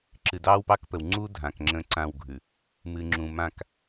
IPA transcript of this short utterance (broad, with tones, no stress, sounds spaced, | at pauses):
ǁ ɨ˨ d ɑː˦ w p ɑ˦ k p ə˨ w ŋ͡ǀ u˦ dʱ ã˨ k ŋ͡ǁ ə̃ː˦ ǀ ã˦˨ w ɡʱ ʉ˨ | m ɨ˨ ŋ͡ǁ ũ˨ m ã˦˨ k